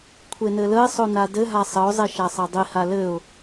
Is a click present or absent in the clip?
absent